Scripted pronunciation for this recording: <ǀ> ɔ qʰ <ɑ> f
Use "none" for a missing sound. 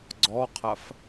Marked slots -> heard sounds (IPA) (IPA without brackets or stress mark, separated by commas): ɡ͡ǀ, a